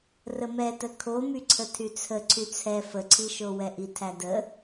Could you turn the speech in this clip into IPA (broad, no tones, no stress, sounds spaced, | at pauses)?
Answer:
r ə m ɛ t ə kʰ o m y ǀʰ ə tʰ y t͡sʰ ə ǀʰ y t͡sʰ ɛ f ə ǀʰ i ʃ o w ɛ ʔ i tʰ æ d ə